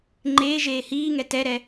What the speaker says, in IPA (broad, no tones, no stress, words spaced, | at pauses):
ŋ͡ǃeːʒeː hiː ŋɛtɛɾɛ